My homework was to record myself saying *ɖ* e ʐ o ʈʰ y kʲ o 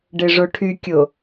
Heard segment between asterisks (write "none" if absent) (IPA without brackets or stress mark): ɖ